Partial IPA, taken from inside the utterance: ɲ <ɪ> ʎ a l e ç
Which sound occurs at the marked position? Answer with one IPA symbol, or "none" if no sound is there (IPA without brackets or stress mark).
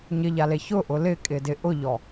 ɪ